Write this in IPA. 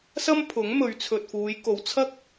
s ɐ˥ m pʰ ʊ˨˥ ŋ m ɵ˨˧ ɥ t͡sʰ ɵ˨ t̚ f uː˨˧ j k o˨ w t͡sʰ ɐ˥ k̚

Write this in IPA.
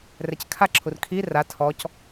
r ɛ c kʰ a ǁʰ u r kʰ i r a tʰ ɔ c

